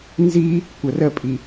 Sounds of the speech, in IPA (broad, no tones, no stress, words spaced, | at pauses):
nzi | kʷərəpʼi